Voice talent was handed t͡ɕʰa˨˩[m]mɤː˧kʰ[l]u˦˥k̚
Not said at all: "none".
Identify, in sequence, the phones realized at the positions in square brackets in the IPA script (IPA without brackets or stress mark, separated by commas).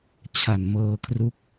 n, r